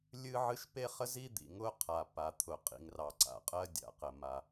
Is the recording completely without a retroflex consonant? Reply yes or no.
yes